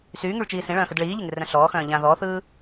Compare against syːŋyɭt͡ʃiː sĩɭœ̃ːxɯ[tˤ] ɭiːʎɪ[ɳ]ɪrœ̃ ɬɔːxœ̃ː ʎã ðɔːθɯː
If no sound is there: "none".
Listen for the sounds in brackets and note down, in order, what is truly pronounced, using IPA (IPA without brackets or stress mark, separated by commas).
d, ŋ